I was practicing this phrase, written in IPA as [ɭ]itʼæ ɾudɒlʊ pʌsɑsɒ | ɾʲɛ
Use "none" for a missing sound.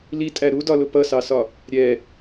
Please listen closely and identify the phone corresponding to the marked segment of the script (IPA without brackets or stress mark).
l